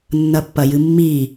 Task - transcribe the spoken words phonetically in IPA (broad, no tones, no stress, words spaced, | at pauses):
nːɐpːɐjɨmːi